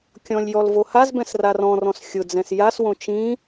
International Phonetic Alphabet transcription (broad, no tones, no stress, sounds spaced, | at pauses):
kʲ ɔ̃ lʲ j ɔ l v o h a z b ɛ̃ s r a r ɔ̃ r ɔ̃ s xʲ ʊ d͡z ɛ̃ s j a s w õ t͡ʃ ĩ